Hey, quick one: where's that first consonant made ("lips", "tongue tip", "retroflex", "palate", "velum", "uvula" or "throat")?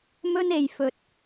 lips